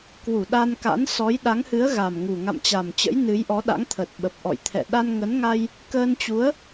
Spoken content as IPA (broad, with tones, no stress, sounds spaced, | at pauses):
k w u˧˩ ɗ a˧ n k a̰˧˥ n s ɔ˨˦ j ɗ a˨˦ ŋ h ɨ˨˦ ə̯ ɣ a˨˩ m ŋ u˨˩ ŋ a̰˧˨ m t͡ɕ a˨˩ m t͡ɕ ə̰˧˥ j n ɨ˨˦ j ʔ ɔ˨˦ ɗ a̰˧˥ ŋ t̪ʰ ə˨˩ t̚ ɓ ə˨˩ p̚ ʔ ɔ̰˧˨ j t̪ʰ ɛ̰˧˨ ɗ a˧ n ŋ ə˨˦ n ŋ a˧ j | k əː˧ n t͡ɕ u˨˦ ə̯